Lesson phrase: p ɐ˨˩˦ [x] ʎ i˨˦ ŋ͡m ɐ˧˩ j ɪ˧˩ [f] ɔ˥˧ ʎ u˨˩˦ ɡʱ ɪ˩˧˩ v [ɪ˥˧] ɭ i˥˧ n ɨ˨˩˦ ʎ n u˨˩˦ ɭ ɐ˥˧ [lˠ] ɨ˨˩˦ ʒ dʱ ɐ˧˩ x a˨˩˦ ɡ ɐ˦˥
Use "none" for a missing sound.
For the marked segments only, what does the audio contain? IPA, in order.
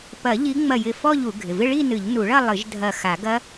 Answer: none, f, ɪ˥˧, lˠ

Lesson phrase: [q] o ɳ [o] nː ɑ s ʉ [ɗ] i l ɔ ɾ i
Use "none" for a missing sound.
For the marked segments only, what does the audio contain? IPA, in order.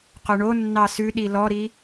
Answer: q, o, ɗ

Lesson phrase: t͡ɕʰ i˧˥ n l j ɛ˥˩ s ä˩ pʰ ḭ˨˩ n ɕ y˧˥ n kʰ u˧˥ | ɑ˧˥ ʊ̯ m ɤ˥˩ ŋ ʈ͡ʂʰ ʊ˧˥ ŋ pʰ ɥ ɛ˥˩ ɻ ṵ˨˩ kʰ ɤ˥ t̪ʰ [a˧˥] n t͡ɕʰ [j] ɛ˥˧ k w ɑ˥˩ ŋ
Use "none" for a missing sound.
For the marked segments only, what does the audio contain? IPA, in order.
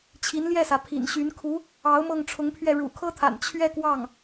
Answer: a̰˨˩, ɥ

